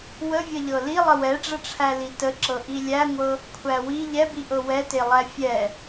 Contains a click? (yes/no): yes